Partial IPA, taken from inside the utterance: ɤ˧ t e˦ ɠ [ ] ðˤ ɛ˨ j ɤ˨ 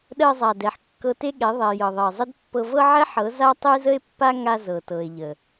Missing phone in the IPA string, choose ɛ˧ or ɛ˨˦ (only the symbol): ɛ˨˦